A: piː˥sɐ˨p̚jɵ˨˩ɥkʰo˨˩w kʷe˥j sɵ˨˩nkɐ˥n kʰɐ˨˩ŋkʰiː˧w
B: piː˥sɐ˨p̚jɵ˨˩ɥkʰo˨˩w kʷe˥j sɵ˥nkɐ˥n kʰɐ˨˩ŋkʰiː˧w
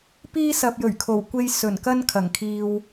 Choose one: A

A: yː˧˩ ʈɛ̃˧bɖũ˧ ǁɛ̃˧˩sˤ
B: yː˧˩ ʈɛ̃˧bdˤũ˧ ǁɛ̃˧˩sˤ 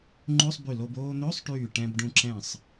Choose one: A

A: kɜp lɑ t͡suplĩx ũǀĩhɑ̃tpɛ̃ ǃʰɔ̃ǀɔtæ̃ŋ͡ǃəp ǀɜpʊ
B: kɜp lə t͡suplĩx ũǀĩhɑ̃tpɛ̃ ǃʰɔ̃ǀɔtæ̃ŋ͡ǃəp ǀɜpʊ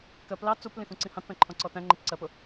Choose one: A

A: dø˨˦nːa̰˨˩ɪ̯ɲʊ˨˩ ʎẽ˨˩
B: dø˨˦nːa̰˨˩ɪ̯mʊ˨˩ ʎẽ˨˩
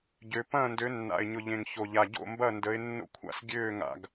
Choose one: A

